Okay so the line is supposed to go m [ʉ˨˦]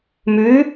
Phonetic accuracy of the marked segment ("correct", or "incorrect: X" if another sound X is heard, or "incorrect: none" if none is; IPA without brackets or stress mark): correct